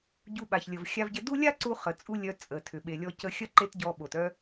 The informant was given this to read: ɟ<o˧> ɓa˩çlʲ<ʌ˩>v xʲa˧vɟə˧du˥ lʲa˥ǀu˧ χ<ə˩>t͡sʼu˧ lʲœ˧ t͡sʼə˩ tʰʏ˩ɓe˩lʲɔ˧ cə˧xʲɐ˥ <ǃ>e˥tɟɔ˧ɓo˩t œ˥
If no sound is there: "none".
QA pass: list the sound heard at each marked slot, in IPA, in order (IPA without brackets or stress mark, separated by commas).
u˧, ə˩, ə˩, ǃ